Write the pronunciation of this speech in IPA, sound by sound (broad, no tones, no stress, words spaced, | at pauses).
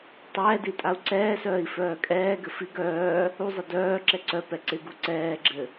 tˤɛːdi tʼau̯ǀɛːsœːi̯ fœːkʼɛːɡɘ fiɡ œː | uzˤɪ dœː ǁɛǀœpɛ ǀɪɡu ǀɛːɡ͡ǁɘ